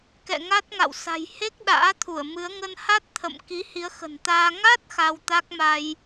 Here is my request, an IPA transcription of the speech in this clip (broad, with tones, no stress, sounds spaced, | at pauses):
k ɛ̰˧˨ ŋ a˦˥ t̚ ŋ a̰˧˨ w s a̤˨˩ j h e˦˥ k̚ ɗ a̰ː˧˥ t̪ʰ u˧˩ ə̯ m ɨ˨˦ ə̯ ŋ ə˧ n h a˦˥ t̚ t̪ʰ ə̰˧˨ m k i˨˦ h i˨˦ ə̯ x ə̤˨˩ n t̪ aː˧ ŋ a˦˥ t̚ x a˧ w t̪ a˦˥ k̚ m a˧ j